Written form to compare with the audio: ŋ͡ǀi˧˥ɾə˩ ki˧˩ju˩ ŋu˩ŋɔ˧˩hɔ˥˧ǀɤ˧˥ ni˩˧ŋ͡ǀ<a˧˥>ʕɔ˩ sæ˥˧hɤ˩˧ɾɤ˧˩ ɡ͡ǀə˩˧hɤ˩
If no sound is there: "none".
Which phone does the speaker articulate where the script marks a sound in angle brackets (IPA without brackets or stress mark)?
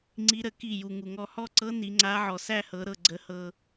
a˧˥